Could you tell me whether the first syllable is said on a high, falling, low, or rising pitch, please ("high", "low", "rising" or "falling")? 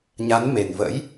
rising